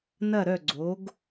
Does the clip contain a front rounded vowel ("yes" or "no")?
yes